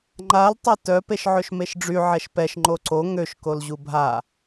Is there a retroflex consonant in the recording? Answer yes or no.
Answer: yes